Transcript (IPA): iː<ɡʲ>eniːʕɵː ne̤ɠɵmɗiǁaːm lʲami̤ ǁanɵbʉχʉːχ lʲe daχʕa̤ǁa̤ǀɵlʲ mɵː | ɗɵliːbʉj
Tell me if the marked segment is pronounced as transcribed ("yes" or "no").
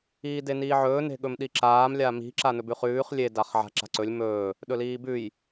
no